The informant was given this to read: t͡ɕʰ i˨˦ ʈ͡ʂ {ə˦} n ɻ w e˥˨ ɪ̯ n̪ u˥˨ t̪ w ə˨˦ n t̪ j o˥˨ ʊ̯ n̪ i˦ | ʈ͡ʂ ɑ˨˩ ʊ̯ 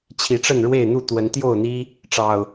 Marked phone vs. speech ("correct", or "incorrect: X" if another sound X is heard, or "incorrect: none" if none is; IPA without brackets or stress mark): incorrect: ə˥˨